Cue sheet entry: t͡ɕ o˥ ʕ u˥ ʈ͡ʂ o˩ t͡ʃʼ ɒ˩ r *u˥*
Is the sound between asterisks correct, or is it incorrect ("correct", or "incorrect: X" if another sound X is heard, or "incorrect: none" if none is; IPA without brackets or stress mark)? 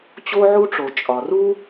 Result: correct